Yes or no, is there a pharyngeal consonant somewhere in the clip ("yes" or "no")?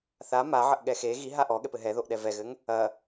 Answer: yes